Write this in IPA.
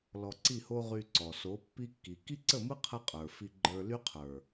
lɔ˧ǀi˦˨ho˦ ʁy˧ǀɔ˨ so˨˦pːi˦kːi˨ ki˦ǀə˦˨mɯ˦ qʰə˦qʼə˞˨ fi˧ɡ͡ǃə˞˧ ly˦qʰə˞˨

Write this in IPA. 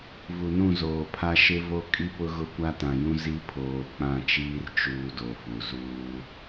vu˨nũ˦˨zoː˨pʰa˦ ʃɪ˦vo˦ kʼi˦pʊ˦ ɣʊ˦kʷa˦ tã˨jũ˦ zi˦ pʰoː˨k͡pã˦˨t͡ʃiː˦r t͡ʃuː˦do˨fu˨ zuː˦

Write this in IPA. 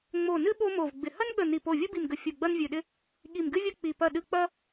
ŋ͡mo˧˩nɨ˥ ɓo˥mo˧˩vɡ͡bɪ˧˩ hɐ˥nɠə˧˩ ni˧˩ po˧˩vʲu˥bi˧˩mɡə˧˩ fʲu˧˩ɡ͡bɐ˥nvʲɨ˧˩ɗɪ˥ | ɠi˧˩mɡɨ˥vʲɐ˥ k͡pi˧˩ pɐ˧˩ɗɨ˧˩ k͡pɐ˥

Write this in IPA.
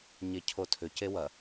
ɲecʰotʰʏ cewɐ

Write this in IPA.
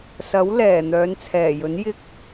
sɐ˨˥wlɛː˨˩ n̪œː˨˧nt͡sʰɛː˨˩jɵ˨˥n jɪ˧k̚

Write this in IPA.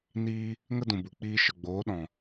niː˦ | ŋə˦dũ˨bu˨k͡piː˧ ʃə˨ɡ͡boː˨˦ ɗɔ̃˨

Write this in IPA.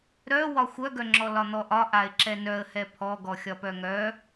ɾœwɒ xʷœɡœŋ͡ǁɔ lɒn̪ɔʔɒ ʔaɪ̯ǁɛnœə̯ hɛpʰɔɡɔ xʲɒpœŋœ

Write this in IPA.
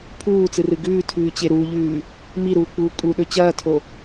pʰuːt͡sɨrɨ ɡʉːtʰʉːt͡ɕe ɾuʎʉː | miɾuːk͡puː kʼuɗɵ t͡ɕɐːtʰo

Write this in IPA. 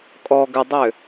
kʼɔɡ ʏdˤʏ

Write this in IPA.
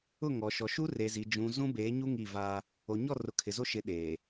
ʊ˦˨ŋɔ˨ʃɔ˨ ʃu˦re˨zi˨ d͡ʒũ˨ zũ˦beː˨˦ɲu˦ ŋi˦˨va˦ | o˨ɲɔ˦˨rʊ˨ kʰɪ˨zo˦ʃɪ˨˦ ɗeː˨

